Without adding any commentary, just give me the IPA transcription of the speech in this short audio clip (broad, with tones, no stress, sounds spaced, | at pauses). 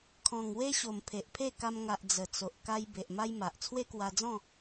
kʰ ɔ̃˨˩ ŋ w e˦ ɕ o˨˩ m pʰ e˨ ʔ pʰ e˥˧ k a˧ m ŋ a˨ ʔ d͡z ə˨˩ t͡s o˨ ʔ k a˧ j b e˨ ʔ m a˦ j m a˨ ʔ t͡sʰ w e˦ k w a˧ d͡z ɔ̃˥˧